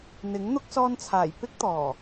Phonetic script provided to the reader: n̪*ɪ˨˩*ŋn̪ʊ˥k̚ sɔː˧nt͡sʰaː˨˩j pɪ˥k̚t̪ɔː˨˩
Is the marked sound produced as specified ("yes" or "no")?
no